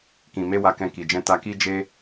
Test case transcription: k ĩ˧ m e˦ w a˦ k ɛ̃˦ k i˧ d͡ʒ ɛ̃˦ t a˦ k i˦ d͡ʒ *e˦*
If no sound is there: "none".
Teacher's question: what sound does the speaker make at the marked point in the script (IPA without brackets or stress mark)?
e˦